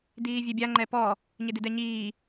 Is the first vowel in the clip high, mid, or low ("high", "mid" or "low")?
high